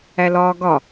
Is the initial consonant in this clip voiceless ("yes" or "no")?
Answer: no